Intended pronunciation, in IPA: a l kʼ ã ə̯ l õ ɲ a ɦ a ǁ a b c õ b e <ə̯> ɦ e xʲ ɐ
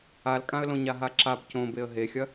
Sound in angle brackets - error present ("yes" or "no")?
no